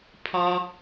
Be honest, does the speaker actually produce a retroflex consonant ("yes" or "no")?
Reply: no